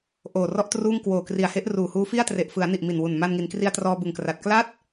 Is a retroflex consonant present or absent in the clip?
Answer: absent